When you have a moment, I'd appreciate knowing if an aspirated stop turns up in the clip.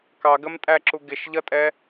no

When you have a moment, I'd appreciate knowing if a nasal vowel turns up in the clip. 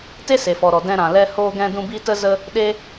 yes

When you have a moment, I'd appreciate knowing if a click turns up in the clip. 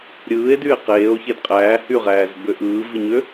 no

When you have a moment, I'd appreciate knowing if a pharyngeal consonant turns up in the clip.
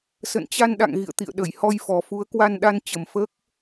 no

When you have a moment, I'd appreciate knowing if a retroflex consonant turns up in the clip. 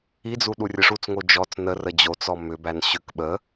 yes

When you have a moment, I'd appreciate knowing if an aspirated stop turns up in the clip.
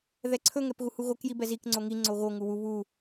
yes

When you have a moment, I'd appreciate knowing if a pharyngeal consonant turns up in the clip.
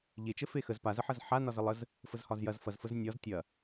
yes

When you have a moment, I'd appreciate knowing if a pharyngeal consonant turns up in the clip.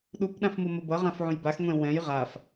yes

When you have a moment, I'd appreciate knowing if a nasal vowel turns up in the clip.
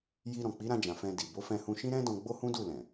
yes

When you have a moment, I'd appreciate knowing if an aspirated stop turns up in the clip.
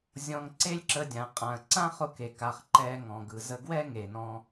no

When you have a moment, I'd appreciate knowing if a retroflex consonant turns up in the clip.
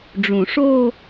yes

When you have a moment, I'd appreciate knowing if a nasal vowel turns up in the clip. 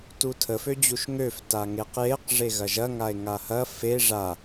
no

